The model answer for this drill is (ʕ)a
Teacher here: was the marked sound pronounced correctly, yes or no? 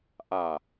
no